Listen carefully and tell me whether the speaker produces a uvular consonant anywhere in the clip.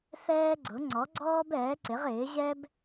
yes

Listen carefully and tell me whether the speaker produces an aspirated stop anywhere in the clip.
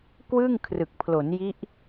yes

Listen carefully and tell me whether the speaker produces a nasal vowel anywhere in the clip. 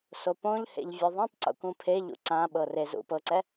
yes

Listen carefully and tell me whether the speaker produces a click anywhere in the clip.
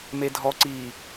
yes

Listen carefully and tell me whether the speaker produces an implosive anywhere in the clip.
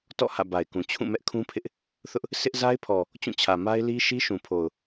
no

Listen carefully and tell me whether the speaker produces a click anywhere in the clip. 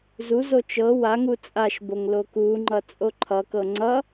yes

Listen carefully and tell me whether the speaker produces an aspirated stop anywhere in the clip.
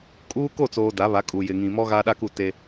no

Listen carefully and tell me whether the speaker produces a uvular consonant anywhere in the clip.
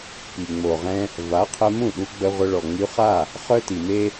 yes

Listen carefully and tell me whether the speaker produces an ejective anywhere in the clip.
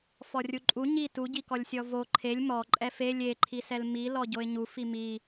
yes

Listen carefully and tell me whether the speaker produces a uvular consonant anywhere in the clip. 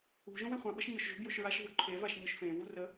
yes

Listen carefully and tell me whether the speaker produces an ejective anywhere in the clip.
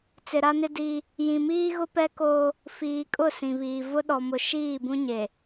yes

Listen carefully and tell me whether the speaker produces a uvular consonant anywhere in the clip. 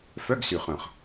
yes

